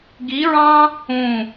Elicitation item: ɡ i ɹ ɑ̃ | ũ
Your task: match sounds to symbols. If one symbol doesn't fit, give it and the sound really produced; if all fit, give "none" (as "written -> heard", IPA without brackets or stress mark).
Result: none